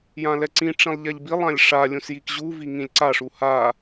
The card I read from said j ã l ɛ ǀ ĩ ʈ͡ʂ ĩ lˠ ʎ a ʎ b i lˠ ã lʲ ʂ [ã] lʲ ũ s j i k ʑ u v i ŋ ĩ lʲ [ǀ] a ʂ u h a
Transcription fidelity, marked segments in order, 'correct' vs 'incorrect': incorrect, correct

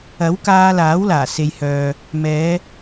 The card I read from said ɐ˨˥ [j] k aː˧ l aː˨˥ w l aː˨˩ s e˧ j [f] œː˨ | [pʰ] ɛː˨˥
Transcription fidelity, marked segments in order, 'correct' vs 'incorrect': incorrect, incorrect, incorrect

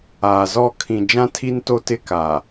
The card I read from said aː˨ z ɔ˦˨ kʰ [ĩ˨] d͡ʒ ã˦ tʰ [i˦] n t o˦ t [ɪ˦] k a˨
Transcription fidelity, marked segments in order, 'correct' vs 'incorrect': correct, correct, correct

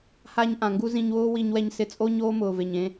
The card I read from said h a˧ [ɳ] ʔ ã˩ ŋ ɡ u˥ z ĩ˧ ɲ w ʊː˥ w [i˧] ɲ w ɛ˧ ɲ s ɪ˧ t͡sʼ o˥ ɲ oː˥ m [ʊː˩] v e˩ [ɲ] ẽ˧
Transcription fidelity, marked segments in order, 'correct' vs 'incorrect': incorrect, correct, correct, correct

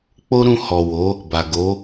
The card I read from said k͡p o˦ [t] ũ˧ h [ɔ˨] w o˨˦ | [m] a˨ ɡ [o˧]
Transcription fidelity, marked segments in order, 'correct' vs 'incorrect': incorrect, correct, incorrect, incorrect

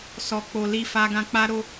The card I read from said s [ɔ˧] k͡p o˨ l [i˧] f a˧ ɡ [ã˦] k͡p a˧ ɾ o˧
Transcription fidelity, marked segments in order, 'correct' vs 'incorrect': incorrect, correct, incorrect

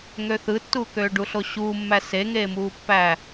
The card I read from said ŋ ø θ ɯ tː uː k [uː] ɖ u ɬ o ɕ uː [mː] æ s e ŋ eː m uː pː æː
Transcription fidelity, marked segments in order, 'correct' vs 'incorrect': incorrect, correct

